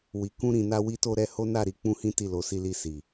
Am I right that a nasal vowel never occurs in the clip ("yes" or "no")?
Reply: no